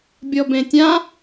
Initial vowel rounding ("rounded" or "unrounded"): rounded